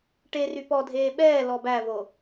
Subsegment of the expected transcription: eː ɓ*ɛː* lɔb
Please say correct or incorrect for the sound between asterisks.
correct